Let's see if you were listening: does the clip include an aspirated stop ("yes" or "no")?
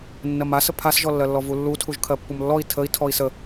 yes